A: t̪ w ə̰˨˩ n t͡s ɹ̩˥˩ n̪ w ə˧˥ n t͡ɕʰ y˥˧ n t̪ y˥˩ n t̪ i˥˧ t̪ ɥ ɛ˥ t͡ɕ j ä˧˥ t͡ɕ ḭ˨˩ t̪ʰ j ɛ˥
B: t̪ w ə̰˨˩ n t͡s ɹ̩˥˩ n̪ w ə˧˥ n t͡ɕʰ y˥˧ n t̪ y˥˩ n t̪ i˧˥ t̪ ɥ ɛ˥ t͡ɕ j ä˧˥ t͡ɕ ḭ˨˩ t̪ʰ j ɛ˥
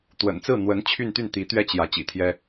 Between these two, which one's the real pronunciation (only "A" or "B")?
B